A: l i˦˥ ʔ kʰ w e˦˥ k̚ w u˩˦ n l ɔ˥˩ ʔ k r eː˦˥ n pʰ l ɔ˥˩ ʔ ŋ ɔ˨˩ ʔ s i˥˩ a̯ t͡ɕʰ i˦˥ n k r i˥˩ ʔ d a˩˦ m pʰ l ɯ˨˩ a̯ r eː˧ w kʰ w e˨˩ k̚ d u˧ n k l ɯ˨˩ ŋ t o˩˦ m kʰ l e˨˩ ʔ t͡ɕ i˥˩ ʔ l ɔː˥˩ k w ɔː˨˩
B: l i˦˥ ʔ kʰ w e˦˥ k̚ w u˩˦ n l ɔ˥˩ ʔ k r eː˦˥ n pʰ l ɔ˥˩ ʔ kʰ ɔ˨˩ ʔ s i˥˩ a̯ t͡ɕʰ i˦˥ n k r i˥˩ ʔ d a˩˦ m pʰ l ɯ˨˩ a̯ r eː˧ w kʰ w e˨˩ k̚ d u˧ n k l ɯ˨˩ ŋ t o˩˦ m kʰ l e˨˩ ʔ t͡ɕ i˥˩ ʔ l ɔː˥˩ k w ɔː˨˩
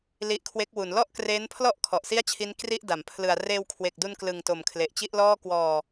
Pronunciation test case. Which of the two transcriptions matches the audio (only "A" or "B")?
B